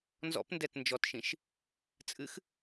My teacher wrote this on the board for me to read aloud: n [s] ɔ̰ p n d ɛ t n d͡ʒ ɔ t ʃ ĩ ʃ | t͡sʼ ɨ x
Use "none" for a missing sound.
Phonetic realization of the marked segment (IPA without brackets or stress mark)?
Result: z